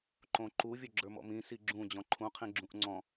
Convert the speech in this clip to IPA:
ǃ õ ǃ u vʲ o ɡ͡ǁ ə˞ m ɔ̰ m ĩ s i ɡ͡ǁ ũ d͡ʑ ɔ̃ ǃʰ ũ qʰ ĩ ɡ͡ǁ ũ ʔ ŋ͡ǀ ɔ̃

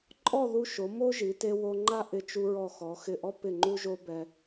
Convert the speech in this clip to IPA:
ǃʼ ɔ˥˧ ð u˧ ʃ o˩˧ m o˥ ʒ i˩˧ t e˧ w o˧ ŋ͡ǃ a˥ ʔ ɪ˧˩ t͡ʃ u˧ ɹ ɔ˧˩ x ɔ˩˧ x ɪ˧˩ ʔ ɔ˥ p ɪ˧˩ ŋ͡ǃ u˧ ʒ o˧ b ɛ˧

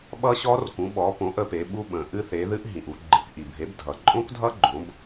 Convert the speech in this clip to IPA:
ɓ ʌ˦˥ ɕ ɔ˦˥ r k ũ˩˥ ɓ ɔ˩˥ p õ˩˥ ʔ ə˩˧ p e˩˧ ɓ u˧ ɓ ə̃˩ ʔ ɨ˧ θ e˩˥ ð ɨ˦˥ ʔ ɦ ĩ˩ ʔ u˩˧ ɡ͡ǃ ɨ˩˧ k ʔ i˩ bʱ e˩˥ b dʱ ʌ˩ ǃʼ õ˦˥ k dʱ ʌ˦˥ ɡ͡ǃ õ˩˥ b

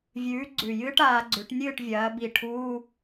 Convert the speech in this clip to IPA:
vʲ ʉː˨˥ ɡ͡ǀ ʉ˨˩ j ɨː˥ ʈ aː˩˧ ɡ͡ǀ ʉ˩˧ ʈ nʲ ɨː˥˨ ʈ vʲ ɐː˩˧ b i˨˩ ʈʰ u˧˥˧

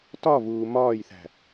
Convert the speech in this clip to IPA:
t ɒ v uː m ɒː j θ æ̤

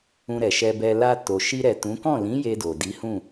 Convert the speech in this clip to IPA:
ũ˧ ɾ ɛ˨ ʃ ɛ˧ b ɛ˧ l a˧ t o˨ ʃ i˧ ɾ ɛ˨ t ũ˨˦ k ɔ̃˦˨ l ĩ˨˦ j e˧ d o˨ d i˨˦ h ũ˦˨

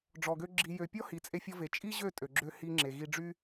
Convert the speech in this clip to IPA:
ɖ͡ʐ ɔ˨ ɡ ø˧ ɡ͡ǁ i˨ j ø˨ pʲ ɔ˦ h i˨ t͡sʼ e˧ fʲ ɔ˧ v e˨ t͡ʃʼ i˦ ʑ ø˦˨ tʼ ø˨ ɡ͡ǁ ø˧ h i˧ ŋ͡ǁ e˨ ɣ i˧ ɖ͡ʐ y˦

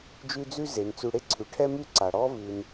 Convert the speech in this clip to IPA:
d͡ʒ ʉ˦ d͡z ʉ˥ z e˩ n t͡s ʉ˨ ɽ e˥ ǀʰ ʉ˩ ʈʰ ɛ˥ m ʉ˥ ǀ a˩ ɽ ɔ˥ v ʉ˨ n

